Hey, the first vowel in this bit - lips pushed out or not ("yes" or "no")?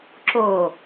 yes